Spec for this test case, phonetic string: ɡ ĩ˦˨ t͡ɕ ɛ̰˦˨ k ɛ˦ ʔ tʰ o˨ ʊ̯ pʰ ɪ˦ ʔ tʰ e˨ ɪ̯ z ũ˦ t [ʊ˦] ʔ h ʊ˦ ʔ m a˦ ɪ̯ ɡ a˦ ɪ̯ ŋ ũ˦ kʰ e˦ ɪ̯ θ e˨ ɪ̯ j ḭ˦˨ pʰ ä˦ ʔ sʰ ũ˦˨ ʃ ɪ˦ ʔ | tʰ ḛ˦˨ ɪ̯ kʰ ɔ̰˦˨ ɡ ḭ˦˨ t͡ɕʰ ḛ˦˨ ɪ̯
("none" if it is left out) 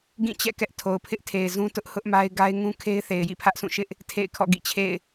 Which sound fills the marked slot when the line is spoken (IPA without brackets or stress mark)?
ʊ˦